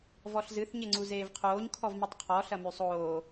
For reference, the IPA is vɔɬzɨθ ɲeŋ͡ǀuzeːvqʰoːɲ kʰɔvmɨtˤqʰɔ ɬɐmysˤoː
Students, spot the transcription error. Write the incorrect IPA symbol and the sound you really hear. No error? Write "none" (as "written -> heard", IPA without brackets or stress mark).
none